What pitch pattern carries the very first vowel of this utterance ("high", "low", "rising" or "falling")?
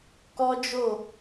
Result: high